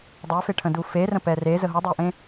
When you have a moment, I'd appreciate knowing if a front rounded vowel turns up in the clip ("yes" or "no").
yes